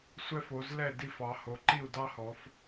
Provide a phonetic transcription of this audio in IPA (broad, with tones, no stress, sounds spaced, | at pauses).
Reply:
sʷ ɛ˥ f o˨˦ z l ɛ˥˨ d i˥˨ f ɑ˨˦ h o˨˦ ǃ i˥˨ u̯ d ɑ˥ h ɔ˨˦ f